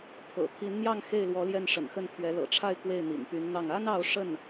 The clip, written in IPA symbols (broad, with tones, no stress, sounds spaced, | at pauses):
pʰ ɤ̰˨˩ t̪ʰ i˧˥ n n̪ j ɑ˥˧ ŋ x e˥˩ ɪ̯ l w ɔ˧˥ l j ɛ˥˩ n ʂ ə̰˨˩ n x ə˥˩ n t̪ʰ ɥ ɛ˧˥ l ɤ̰˨˩ ʈ͡ʂʰ a˥˧ ɪ̯ k w e˥˩ ɪ̯ n̪ ḭ˨˩ n p y˧˥ n n̪ ɑ˥˩ ŋ a˥ n ɑ˥˧ ʊ̯ ʂ ə˥˩ n